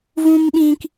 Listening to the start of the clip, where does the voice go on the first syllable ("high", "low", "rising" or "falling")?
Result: high